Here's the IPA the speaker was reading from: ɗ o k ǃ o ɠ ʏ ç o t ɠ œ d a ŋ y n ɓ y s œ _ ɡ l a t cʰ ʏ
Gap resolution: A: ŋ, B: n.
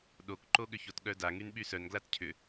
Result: B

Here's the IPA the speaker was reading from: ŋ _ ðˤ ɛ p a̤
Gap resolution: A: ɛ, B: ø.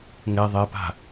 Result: A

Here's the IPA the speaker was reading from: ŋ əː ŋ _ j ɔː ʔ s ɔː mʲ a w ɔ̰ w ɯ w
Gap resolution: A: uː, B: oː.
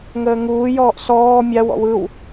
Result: A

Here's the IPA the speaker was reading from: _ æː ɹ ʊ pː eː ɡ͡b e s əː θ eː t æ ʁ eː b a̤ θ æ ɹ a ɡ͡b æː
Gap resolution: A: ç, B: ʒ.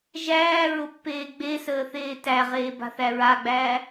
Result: B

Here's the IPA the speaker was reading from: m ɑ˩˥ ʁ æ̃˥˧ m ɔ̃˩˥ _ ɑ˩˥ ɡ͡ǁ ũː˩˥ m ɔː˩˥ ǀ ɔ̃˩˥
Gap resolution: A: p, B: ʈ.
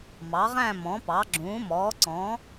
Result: A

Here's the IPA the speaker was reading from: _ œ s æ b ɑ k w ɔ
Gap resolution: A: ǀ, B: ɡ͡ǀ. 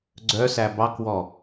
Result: B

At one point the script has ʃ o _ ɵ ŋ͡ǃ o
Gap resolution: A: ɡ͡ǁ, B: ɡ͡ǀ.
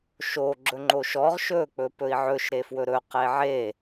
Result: A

